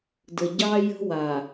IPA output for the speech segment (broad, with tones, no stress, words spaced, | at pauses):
də˨ɟɑ˦ jə̤˦wa˨